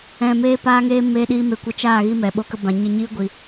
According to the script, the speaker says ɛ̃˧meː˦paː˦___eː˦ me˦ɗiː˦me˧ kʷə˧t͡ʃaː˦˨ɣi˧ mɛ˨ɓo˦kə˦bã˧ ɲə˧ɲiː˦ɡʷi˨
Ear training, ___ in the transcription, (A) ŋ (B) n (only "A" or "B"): A